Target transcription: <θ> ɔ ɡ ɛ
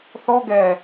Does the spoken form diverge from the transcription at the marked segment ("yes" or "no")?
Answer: no